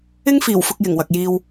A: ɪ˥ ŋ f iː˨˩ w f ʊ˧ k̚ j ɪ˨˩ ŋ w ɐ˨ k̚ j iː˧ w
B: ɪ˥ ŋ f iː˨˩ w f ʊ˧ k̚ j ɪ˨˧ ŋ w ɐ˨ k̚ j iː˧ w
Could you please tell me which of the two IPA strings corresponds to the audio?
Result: A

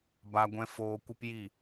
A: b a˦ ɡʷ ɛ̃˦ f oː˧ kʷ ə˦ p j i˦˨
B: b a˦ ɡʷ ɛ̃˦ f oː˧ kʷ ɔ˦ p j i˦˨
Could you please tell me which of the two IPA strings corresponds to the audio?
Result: A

